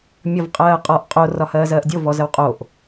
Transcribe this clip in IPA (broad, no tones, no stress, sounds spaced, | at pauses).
mʲ ɒ v qʼ ɜː qʼ ɒ ʔ qʼ o r ɒ h ɜː z ɜː ʔ dʲ o v ɔ z ə w qʼ o ʔ